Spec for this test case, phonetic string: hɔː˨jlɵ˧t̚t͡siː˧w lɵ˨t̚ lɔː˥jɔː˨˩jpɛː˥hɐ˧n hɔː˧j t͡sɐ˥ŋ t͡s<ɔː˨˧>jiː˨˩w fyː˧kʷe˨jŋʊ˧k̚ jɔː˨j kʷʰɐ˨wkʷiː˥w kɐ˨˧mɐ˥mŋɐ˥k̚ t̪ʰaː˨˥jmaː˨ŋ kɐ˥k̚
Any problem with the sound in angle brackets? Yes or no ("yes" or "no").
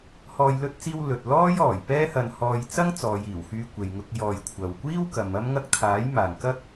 no